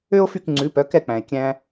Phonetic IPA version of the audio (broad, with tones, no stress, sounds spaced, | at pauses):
ø˥ o̯ f y˥˩ k ŋ͡ǀ ʉ˩˥ p œ˩˥ k ɛ˥˩ k͡p æ̃˩ e̯ kʲ æ̃˧